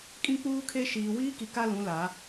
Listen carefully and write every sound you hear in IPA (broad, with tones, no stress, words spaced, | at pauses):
kʼĩ˦k͡puː˦kʰe˦ ʃiː˨wiː˦ki˨ ka˦lũ˨˦la˨˦